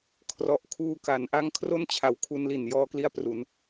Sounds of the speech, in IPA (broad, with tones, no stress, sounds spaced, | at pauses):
kʰ r ɔ˨˩ ʔ kʰ uː˧ k a˩˦ n ʔ a˦˥ ŋ kʰ r o˥˩ n t͡ɕʰ a˩˦ w kʰ u˧ n l i˨˩ n j ɔː˧ k l i˧ a̯ p r u˩˦ n